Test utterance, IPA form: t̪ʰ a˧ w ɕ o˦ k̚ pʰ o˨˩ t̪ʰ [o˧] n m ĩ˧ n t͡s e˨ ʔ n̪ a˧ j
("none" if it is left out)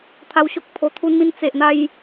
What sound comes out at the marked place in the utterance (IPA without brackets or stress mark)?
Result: u˧